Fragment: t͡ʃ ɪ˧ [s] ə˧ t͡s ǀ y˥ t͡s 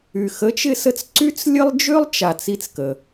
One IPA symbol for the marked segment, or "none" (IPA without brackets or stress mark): s